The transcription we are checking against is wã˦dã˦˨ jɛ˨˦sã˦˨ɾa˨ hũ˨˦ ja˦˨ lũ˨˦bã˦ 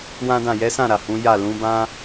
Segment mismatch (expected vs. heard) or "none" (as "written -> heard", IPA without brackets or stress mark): none